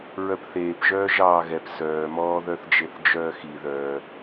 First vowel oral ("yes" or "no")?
yes